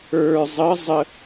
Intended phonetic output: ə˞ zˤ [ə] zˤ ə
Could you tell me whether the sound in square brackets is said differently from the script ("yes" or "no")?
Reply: no